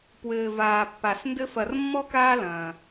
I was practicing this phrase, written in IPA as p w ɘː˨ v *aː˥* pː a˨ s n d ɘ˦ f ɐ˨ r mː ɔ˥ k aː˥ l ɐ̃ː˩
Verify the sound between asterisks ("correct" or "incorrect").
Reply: incorrect